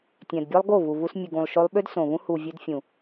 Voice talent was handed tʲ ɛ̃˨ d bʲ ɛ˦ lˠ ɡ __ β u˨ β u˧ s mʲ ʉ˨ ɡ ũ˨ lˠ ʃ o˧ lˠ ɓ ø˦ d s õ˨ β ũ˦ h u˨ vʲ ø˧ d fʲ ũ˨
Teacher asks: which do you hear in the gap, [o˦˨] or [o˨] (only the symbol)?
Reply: o˦˨